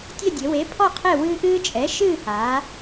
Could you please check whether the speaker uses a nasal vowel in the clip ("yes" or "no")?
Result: no